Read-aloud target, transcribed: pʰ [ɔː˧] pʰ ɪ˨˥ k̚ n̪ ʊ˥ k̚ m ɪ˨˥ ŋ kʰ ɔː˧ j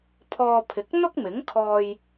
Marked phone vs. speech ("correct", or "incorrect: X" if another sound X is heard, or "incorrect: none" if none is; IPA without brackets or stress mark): correct